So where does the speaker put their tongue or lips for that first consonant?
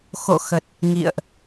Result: velum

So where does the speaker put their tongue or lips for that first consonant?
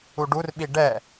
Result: retroflex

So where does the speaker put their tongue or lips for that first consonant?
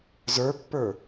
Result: tongue tip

